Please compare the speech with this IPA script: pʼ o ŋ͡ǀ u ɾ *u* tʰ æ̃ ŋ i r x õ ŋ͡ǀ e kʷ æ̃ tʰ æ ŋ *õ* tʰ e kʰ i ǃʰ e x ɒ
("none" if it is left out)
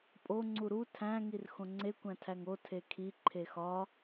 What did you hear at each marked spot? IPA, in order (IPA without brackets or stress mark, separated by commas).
u, o